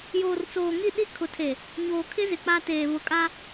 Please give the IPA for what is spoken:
j oː˨ r t͡s oː˨ ŋ i˦˨ ɗ i˦ kʰ ʊ˨ tʰ e˨ | ɲ oː˨ kʰ ɪ˦ z ɪ˨ k͡p a˦ t eː˨ β ʊ˨ kʼ a˦

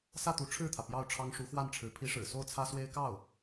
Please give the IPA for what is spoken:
s ä˥˩ t̪ u˧˥ ʈ͡ʂʰ ɻ̩˥˩ t̪ʰ ä˩ p j ɑ˥˩ ʊ̯ ʈ͡ʂʰ ɑ˥ ŋ ʂ u˧˥ x w a˥˩ n ʈ͡ʂʰ ɻ̩˧˥ pʰ i˧˥ ʂ ɻ̩˨˩ s o˥˩ ʊ̯ t͡sʰ ä˥ s w e˥ ɪ̯ k ɑ˥˩ ʊ̯

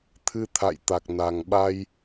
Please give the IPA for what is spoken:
t̪ʰ ɨ˧ t̪ʰ a̰˧˨ j t̪ a˨˩ k̚ n a˨˩ ŋ ɓ a˧ j

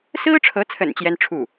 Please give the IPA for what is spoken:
s ɹ̩˥ ʈ͡ʂʰ ɤ˧˥ t͡sʰ ə̰˨˩ n t͡ɕ j ɛ˥ n ʈ͡ʂʰ u˥˩

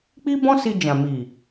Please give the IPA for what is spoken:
k͡p i˦ b ɔ̃˦ s i˧ d͡ʒ ã˨ m i˨

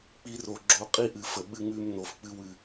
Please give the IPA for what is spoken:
k͡p i˦ r o˧ ɡ͡ǁ o˧ qʼ i˦ ʔ ɨ˨ f ə˨ ɓ ɨ˧ ŋ ʉ˧ m n o˨ f k͡p ɨ˧ w ɨ˨

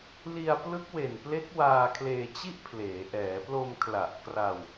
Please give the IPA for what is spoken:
l i˧ a̯ p l ɯ˦˥ k̚ w e˨˩ n p l e˦˥ k̚ w aː˧ kʰ l eː˧ t͡ɕ i˥˩ ʔ pʰ l eː˩˦ ʔ ɛː˩˦ p l o˧ m kʰ l a˨˩ ʔ k r a˧ w

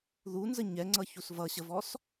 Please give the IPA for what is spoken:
ð u n z ə ɲ ɛ ŋ͡ǀ ʌ ç u s v ʌ ɕ ə v ɔ s

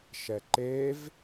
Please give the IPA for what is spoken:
ʃ ɛ ǃ e v

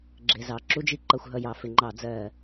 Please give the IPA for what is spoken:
ɡ͡ǁ ɪ˧˩˧ z ɑ˧˩˧ ǁ u˥ d͡ʒ i˥ ǃ ʌ˧˩˧ xʷ ɦ ʌ˧˩˧ j ɑ˧˩˧ f ɪ˧˩˧ ŋ͡ǃ ɑ˧˩˧ d͡z ɜ˧˩˧

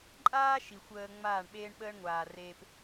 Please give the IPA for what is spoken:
ǃʼ aː˦ ʃ i˨ xʷ əː˧ ŋ͡m aː˦˨ ɳ ɓ eː˦ ɳ ɓ əː˦ ɳ ŋʷ aː˨ r eː˨ p

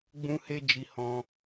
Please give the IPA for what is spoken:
ɡ͡b ũ˦ h e˦ d͡ʒ i˧ h ɔ̃˧

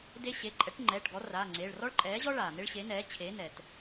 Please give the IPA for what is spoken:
d e˦ ɕ e˩˧˩ ǃʼ ɛ˩˥ ʈ ŋ͡ǃ ɛː˩˧˩ ʈ ɡ ɔ˩˥ r aː˩˧˩ ŋ͡ǀ eː˩˧˩ ɭ r ɔ˦ ɭ ǃʼ ɛː˩˥ ʑ ɔ˦ ɭ aː˩ n̪ e˦ ɭ ɕ e˩˥ n ɛː˩˥ t͡ɕʰ eː˩˥ n ɛ˩ t

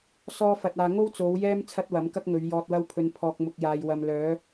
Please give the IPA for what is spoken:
s ɔː˥ f ɐ˧ t̚ aː˧ ŋ o˥ w t͡s o˨˧ w j ɛː˥ m t͡sʰ ɐ˥ t̚ w ɐ˨˥ m k ɐ˥ k̚ ŋ ɵ˨˧ ɥ j ɔː˧ t̚ w ɐ˥ w pʰ ɵ˧ n pʰ ɔː˨ k̚ m ʊ˨ k̚ j aː˨ j w ɐ˨ m l œː˨˧

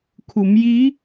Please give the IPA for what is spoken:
kʰ u˩˧ m j i˧˥

